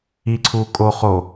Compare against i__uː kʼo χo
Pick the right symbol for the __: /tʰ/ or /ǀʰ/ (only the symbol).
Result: ǀʰ